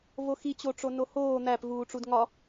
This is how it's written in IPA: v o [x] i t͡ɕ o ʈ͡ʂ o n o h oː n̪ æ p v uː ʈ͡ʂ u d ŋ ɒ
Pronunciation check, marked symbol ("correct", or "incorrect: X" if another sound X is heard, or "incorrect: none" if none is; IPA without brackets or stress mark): correct